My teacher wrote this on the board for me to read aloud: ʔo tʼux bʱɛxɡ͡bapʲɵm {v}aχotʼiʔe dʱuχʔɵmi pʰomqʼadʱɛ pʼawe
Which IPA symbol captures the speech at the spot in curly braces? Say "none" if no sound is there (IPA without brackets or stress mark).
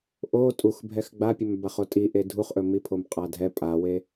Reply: b